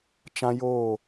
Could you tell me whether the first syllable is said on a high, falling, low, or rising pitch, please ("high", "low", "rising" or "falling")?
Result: high